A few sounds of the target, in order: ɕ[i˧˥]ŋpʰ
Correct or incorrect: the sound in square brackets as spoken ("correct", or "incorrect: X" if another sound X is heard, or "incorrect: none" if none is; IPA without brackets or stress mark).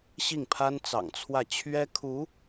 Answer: incorrect: i˥˩